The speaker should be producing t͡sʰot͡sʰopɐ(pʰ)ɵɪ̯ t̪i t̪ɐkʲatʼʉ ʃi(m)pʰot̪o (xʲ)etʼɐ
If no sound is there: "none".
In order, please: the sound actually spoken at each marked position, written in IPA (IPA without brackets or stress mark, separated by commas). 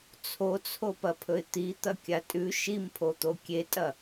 pʰ, m, kʲ